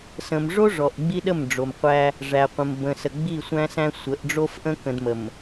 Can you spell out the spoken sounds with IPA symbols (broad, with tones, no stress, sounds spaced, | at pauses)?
s ə̃˨ m ʐ o˦ ʐ ɔ˨ ʔ ɡ͡b i˦ ɗ ə˦˨ m ɖ͡ʐ o˨ m qʷ æ˦ | ʐ æ˨ qʷ ə̃˨ m b ə̃˨ s ə˨ ɡ͡b i˦˨ sʷ æ̃˦ s æ̃˦ sʷ ə˨˦ ʔ ɖ͡ʐ o˦ f ʔ ə̃˦ k ə̃˨ d m ə˨ m